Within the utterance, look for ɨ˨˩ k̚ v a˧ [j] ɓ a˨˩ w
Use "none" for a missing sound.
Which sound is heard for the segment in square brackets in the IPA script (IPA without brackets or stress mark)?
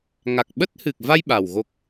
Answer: j